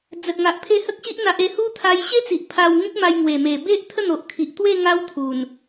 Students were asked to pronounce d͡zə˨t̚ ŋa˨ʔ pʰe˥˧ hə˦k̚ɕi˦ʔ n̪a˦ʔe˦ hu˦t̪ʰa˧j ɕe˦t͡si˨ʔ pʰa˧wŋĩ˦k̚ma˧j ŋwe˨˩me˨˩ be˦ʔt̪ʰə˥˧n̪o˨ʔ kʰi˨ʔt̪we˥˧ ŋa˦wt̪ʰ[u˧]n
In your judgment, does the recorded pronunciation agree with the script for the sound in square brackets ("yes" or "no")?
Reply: no